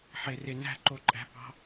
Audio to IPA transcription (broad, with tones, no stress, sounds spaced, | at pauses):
ħ e˨ r e˨ n æ̤˦˨ ǃ o˨ ǃʼ æ̤˨ p ɑ̤˦